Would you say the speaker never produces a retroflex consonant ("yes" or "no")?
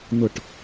no